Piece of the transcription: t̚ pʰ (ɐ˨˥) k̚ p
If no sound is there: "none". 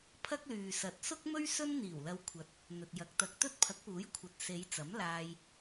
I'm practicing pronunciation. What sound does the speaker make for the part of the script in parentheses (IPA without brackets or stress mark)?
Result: ɐ˨˥